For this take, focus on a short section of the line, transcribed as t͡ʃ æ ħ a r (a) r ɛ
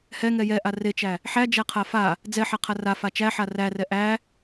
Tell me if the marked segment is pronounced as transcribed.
no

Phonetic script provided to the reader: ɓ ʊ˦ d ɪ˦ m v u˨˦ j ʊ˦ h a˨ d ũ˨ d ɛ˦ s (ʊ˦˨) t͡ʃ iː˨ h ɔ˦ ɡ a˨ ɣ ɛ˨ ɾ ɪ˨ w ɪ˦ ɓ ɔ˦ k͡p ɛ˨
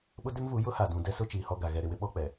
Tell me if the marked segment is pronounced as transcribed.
no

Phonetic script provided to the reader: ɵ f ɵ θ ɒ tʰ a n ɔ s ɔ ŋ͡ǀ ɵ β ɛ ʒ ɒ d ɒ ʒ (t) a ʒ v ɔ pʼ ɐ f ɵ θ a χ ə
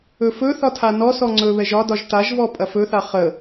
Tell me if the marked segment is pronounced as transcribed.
yes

